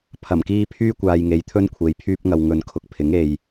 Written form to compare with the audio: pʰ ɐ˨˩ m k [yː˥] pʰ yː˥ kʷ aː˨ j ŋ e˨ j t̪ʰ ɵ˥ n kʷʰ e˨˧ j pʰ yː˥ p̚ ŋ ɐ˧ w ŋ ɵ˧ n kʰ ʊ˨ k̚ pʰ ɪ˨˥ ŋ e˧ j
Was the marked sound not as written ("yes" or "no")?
yes